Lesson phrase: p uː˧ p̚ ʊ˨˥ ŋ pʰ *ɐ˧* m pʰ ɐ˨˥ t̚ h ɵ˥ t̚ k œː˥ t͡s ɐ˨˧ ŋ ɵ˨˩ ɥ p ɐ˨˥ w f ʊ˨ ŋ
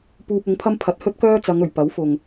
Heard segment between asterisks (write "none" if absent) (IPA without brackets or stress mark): ɐ˥